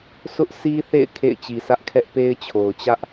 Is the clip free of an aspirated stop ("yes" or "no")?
no